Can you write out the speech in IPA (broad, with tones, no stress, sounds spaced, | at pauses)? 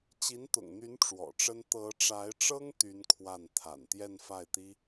t͡ɕ i˧˥ n t̪ ʊ̰˨˩ ŋ n̪ y˧˥ n ʈ͡ʂ w ɔ̰˨˩ ʈ͡ʂ ə˥ n t̪ ɤ˧˥ ʈ͡ʂ a˧˥ ɪ̯ ʈ͡ʂ ɤ˥ ŋ t̪ y˥ n kʰ w a˥˩ n t̪ʰ a̰˨˩ n t̪ j ɛ˥˧ n f a˥˩ ɪ̯ t̪ i˥